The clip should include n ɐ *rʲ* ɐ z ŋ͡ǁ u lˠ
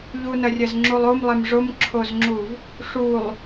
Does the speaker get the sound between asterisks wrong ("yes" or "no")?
no